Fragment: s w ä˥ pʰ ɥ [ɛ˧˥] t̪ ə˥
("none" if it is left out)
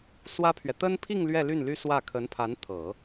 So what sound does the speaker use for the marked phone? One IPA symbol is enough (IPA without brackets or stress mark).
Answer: ɛ˨